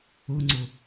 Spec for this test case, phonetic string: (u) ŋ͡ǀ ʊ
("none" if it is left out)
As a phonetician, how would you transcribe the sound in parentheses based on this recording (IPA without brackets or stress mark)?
ʊ